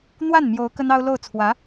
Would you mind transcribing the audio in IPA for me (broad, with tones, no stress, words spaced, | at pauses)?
n̪wa˥˩n mjo˧˥ʊ̯ kə˥nɑ˥ʊ̯ lo˥˩ʊ̯t͡sʰwä˧˥